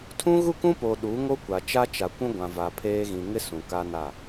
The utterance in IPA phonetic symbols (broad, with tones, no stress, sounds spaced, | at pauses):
tʰ ũ˦ ɣ u˦ k ũ˦ p o˨ ɗ u˨˦ ŋ o˦ kʷ a˨ t͡ʃ a˦ t͡ʃ a˨ kʷ ũ˦ ɡʷ ã˨ v a˨ pʰ eː˦ ɣ ĩ˨ ŋ ɪ˦ s ũ˨ k a˦ n a˦˨